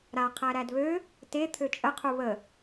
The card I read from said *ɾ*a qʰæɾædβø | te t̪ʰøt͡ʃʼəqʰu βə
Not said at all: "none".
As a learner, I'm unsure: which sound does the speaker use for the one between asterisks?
ɾ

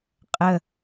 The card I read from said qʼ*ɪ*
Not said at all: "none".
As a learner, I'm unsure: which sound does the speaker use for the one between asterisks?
ə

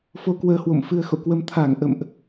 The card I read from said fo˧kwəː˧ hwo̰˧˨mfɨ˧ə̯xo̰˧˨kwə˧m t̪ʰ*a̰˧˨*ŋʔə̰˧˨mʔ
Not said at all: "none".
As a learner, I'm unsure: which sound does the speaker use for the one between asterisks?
a˧˩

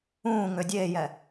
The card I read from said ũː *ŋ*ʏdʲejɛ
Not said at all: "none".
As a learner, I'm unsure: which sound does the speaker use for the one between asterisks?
ŋ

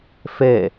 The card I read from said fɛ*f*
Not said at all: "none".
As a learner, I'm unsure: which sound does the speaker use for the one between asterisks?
none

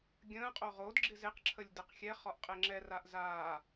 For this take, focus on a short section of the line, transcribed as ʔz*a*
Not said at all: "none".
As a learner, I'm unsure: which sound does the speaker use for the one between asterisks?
aː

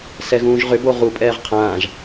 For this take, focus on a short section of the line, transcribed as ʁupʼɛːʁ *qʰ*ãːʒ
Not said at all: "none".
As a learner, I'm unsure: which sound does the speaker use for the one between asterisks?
qʰ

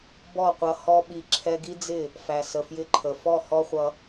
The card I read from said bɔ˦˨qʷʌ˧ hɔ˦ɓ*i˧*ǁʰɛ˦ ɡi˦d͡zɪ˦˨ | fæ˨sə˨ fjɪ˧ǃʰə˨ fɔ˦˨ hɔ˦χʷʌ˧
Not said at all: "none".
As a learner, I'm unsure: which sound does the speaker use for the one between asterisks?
i˧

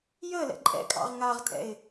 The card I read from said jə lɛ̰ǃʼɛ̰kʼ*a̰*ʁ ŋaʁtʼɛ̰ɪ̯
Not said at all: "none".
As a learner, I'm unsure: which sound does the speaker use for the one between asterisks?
ɑ̰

